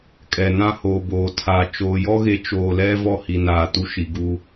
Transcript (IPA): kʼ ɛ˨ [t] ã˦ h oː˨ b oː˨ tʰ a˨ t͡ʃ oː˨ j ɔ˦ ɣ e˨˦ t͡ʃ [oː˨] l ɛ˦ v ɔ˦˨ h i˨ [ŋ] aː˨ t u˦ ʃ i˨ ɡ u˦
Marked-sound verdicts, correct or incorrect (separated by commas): incorrect, correct, incorrect